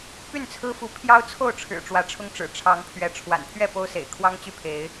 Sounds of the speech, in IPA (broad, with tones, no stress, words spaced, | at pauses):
py˥˨nt͡sʰɹ̩˦fu˨˦ pʰjɑ˦ʊ̯ t͡sʰo˥˨ʊ̯ʈ͡ʂʰɻ̩˨˩ ʈ͡ʂwä˨˦ʈ͡ʂʰʊ˦ŋʈ͡ʂɻ̩˨˩ ʈ͡ʂʰɑ˨˦ŋpʰɥɛ˨˦ ʈ͡ʂʰwa̰˨˩npʰɥɛ˥˨ po˦ʊ̯sḛ˨˩ɪ̯kʰwɑ˦ŋt͡ɕy˥˨ pʰe˨˦ɪ̯